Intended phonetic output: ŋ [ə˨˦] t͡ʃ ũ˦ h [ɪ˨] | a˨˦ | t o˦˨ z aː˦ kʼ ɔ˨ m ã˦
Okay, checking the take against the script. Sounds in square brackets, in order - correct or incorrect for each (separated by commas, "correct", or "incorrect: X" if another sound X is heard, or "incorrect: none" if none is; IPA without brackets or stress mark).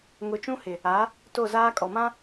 incorrect: ʊ˨˦, correct